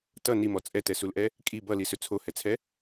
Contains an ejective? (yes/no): yes